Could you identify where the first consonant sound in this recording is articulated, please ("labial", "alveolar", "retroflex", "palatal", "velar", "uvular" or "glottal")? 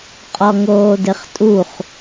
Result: uvular